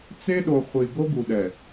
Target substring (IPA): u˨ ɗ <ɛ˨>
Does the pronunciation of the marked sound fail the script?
no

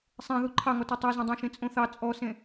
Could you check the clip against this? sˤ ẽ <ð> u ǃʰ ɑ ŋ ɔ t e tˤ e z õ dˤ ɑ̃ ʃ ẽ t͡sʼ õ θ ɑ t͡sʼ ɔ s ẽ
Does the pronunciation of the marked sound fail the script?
no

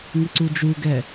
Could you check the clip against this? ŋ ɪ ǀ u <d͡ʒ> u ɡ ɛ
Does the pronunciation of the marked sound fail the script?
no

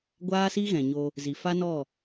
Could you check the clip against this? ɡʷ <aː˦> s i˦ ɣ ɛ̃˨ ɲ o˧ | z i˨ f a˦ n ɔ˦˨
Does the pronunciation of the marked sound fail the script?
no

